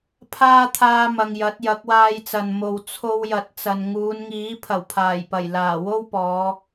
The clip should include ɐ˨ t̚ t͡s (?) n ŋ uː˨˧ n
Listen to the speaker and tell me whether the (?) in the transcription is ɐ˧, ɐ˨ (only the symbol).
ɐ˨